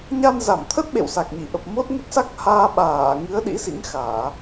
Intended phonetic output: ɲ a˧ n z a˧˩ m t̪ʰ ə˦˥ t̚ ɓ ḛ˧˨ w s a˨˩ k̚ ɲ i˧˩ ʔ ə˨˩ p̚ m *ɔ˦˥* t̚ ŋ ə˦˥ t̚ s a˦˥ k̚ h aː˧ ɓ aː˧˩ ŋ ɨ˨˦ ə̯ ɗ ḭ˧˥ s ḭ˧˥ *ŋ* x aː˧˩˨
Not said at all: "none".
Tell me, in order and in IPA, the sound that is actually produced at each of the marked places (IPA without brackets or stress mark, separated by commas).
o˦˥, ŋ